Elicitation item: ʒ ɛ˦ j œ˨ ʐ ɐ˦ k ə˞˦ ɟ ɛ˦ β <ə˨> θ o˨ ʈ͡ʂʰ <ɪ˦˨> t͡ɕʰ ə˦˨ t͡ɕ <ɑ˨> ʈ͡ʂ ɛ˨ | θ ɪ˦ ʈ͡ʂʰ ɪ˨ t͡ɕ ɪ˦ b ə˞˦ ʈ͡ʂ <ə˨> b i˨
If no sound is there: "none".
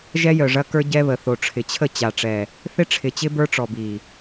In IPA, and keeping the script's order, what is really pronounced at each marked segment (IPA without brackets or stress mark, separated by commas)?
ə˨, ɪ˨, a˨, ɔ˨